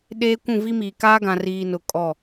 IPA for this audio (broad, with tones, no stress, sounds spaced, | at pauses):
ɗ eː˦ kʷ ũ˦˨ v i˦ m iː˨ k aː˦ ɡ ã˨ r iː˨ n ʊ˨ kʼ ɔ˦˨